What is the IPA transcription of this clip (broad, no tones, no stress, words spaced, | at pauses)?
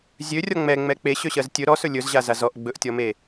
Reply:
zʲørʲɔ ŋ͡mɛŋ͡mɛ k͡peɕøɕɜz tʲɵ ɾɔsɵ lʲɵzʑaza zɔʔ ɡ͡bɵʔtʲɔme